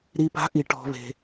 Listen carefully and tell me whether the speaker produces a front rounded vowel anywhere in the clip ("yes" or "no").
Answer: no